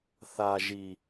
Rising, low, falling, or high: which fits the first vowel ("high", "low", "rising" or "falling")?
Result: high